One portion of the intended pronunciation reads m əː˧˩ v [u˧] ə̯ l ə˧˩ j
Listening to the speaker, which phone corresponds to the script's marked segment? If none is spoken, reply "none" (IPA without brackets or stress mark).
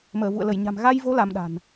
ṵ˧˨